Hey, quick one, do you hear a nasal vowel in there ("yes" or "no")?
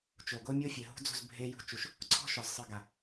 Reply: no